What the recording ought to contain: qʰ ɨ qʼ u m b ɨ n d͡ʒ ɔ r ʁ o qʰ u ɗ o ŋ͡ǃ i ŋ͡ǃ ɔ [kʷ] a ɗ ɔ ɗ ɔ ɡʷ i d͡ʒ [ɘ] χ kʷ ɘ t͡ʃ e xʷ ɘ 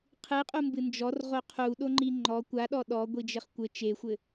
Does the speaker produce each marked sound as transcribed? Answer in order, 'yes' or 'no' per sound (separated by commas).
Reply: yes, yes